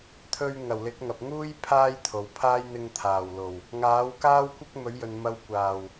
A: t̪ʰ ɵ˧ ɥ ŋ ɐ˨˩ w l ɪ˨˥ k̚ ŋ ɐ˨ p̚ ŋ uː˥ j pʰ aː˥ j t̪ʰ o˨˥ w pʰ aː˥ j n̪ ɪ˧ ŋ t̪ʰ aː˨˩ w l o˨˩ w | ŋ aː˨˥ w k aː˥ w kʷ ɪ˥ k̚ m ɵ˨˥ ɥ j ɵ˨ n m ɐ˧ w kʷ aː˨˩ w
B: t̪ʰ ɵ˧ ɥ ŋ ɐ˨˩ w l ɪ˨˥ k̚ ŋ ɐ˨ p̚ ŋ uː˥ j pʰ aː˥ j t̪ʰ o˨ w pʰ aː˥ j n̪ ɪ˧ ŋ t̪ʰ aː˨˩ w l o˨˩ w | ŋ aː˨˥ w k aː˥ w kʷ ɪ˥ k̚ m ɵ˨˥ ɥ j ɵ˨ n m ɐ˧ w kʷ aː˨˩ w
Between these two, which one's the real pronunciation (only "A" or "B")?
B